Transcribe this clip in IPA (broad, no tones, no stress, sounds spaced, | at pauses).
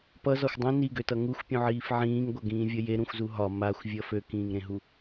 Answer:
p ʌ z ɒ xʷ dˤ ũ n i ɡ ø t ʌ ŋ u xʷ pʲ ũ ʕ iː f ʕ ĩː ŋ ɡʷ ʌ ɡ ĩː vʲ ʌ j e ɾ ũ xʷ z u ɦ ɒ m a xʷ vʲ ʌ f ø k ĩː ŋ ɾ ẽ ɦ u